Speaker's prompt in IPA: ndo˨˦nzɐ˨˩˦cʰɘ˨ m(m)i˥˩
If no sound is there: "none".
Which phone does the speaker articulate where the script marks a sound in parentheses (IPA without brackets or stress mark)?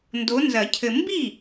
b